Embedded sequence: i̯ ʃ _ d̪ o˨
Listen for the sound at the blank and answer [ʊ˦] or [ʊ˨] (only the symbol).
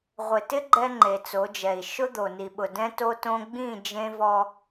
ʊ˦